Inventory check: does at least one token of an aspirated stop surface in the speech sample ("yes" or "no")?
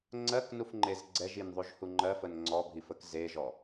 no